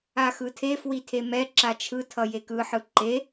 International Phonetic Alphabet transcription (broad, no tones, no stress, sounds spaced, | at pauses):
a x ɯ tʰ e f w i tʰ e m ɛ ǁ a t͡ʃʰ ɯ tʰ ʌ j e k ɯ ħ ɯ ǃ e